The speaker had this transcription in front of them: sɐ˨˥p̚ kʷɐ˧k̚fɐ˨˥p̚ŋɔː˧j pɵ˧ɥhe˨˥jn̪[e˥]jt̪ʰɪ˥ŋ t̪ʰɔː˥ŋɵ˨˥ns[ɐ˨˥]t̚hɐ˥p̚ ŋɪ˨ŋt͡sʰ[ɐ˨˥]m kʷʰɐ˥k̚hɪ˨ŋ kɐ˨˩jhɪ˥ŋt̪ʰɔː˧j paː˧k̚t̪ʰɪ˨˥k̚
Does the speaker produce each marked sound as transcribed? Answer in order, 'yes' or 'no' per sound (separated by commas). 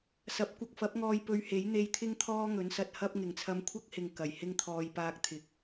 no, no, no